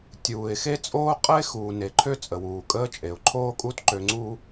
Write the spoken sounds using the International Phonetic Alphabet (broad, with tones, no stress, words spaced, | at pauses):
tʲuː˩ɪ̯ xe˥t͡sʼoː˥ qʼəː˥ɪ̯xuː˩ne˩ǃʰø˥ t͡sʼə˩wuː˩kʼəː˥t͡ʃʼe˩ʊ̯ ǃʰoː˥kʼu˥t ǃø˧ŋ͡ǀuː˥